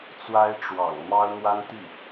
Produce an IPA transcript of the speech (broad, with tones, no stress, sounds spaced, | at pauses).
t͡s w a˥ ɪ̯ ʈ͡ʂ w ɑ̰˨˩ ŋ m ɑ˥ ʊ̯ n̪ w a˥ n t̪ i˥˩